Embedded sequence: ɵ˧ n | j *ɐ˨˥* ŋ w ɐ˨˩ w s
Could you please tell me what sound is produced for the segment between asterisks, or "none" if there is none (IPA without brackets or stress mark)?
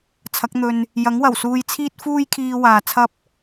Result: ɐ˨˥